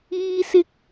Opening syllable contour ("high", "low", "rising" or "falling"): high